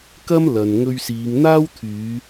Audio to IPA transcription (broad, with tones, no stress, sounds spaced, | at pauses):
k ɐ˥ m l ɐ˨ n ŋ ɵ˧ ɥ s iː˨˧ ŋ n̪ aː˥ w t̪ʰ yː˨˧